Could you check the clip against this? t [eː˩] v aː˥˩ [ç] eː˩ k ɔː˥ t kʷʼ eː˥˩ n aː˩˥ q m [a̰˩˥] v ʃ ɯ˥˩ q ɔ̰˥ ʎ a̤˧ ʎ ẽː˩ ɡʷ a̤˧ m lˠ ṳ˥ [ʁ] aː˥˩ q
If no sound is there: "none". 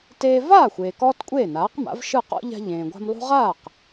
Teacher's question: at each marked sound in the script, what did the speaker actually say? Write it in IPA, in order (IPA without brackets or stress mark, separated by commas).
eː˧, xʷ, a̰˩˥, ʁ